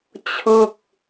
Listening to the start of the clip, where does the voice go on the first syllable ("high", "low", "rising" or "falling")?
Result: falling